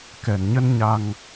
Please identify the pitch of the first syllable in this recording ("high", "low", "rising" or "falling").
low